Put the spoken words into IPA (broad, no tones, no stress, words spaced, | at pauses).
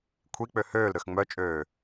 kʷʰik͡pø høːlɾøx ŋ͡mœt͡ʃʼøː